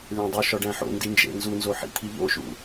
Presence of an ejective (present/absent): absent